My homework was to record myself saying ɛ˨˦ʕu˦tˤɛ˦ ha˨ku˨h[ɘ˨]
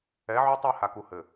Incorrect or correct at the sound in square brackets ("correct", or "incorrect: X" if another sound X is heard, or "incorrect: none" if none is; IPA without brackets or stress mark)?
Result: correct